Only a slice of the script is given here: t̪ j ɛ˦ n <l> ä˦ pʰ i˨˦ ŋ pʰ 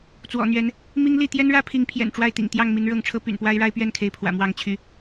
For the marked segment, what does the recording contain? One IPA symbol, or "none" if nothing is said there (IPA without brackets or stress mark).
ɻ